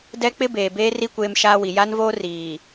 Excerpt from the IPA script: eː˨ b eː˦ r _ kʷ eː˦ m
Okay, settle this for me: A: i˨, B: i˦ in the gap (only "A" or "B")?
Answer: B